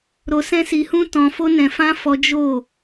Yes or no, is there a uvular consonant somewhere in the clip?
no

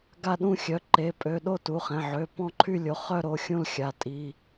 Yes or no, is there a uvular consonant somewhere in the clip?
yes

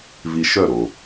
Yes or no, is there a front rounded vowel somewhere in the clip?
yes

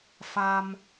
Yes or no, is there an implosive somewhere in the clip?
no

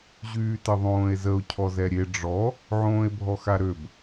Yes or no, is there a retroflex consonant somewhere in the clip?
yes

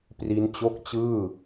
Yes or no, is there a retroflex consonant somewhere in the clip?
no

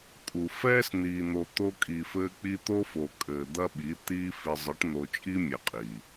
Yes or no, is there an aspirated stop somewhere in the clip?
no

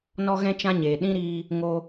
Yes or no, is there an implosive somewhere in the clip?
yes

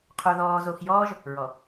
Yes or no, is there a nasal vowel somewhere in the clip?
no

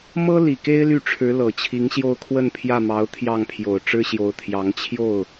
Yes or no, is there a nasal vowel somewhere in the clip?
no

